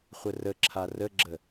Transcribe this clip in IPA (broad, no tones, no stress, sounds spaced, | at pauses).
χʷ ə r ə ǁʰ a r ə ɡ͡ǁ ə